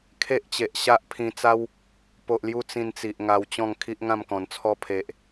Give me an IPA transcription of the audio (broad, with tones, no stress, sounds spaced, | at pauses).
kʰ e˦ ʔ t͡ɕ e˨ ʔ ɕ a˦ ʔ pʰ ĩ˧ t͡s a˦ w | p o˨ ʔ l j u˧ t͡s ĩ˧ n t͡s i˨ ʔ ŋ a˧ w t͡ɕ ɔ̃˥˧ ŋ kʰ i˦ ʔ ŋ ã˥˧ m k ɔ̃˨˩ n t͡sʰ ɔ˦ pʰ e˨ ʔ